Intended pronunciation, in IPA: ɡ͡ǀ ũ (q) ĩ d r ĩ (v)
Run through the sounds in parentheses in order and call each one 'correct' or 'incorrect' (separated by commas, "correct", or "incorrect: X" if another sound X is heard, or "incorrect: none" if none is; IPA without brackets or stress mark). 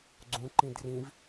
incorrect: ǃ, correct